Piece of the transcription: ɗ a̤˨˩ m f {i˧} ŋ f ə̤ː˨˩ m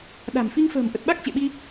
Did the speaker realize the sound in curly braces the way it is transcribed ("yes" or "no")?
yes